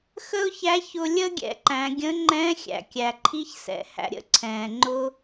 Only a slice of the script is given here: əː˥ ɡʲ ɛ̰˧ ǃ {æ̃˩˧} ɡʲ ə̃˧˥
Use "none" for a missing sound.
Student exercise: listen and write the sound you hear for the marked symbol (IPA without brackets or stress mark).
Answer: æ̃˩˧